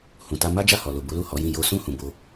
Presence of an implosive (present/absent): absent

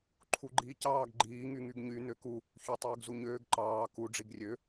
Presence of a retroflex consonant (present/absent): present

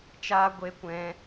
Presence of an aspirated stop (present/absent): absent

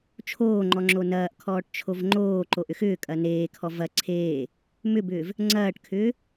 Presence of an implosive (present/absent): absent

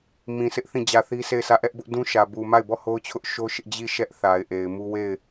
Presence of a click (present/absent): absent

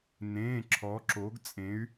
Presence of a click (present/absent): present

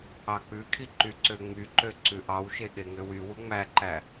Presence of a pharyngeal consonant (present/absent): absent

